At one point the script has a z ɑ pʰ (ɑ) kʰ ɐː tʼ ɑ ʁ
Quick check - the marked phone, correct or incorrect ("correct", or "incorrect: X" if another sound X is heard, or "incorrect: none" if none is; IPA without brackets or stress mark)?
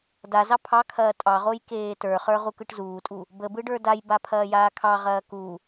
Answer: correct